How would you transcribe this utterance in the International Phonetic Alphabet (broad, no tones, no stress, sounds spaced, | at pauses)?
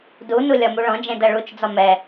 d u n u lʲ ɒ m u ɭ ɔ̃ d͡ʒ ẽ d ɐ ɭ u t͡ʃ d͡z ɒ m ɛ